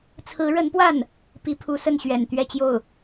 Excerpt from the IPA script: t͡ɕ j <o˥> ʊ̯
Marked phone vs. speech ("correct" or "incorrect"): incorrect